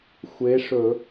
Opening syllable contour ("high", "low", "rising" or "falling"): rising